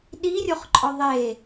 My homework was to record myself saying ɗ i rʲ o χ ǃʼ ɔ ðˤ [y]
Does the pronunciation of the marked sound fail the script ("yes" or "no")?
yes